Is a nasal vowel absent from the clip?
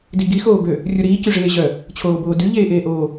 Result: yes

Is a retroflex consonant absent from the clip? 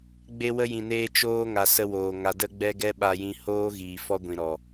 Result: yes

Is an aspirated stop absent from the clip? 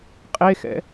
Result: yes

